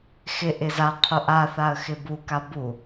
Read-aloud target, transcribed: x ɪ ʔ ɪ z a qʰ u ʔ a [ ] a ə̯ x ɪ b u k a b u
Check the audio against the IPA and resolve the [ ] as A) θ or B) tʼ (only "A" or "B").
A